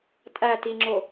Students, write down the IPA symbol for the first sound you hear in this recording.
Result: tʼ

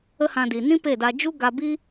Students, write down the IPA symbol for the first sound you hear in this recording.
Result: ə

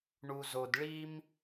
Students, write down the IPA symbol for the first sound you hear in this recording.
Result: ɳ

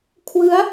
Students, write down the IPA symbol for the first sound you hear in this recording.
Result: kʰ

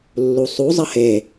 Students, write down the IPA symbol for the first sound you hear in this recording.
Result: lː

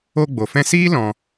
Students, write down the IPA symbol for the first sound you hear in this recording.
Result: o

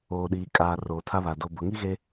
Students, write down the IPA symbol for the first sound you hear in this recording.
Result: oː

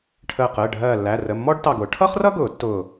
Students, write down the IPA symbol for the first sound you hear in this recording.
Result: ʈʰ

